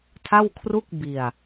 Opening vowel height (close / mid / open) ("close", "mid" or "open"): open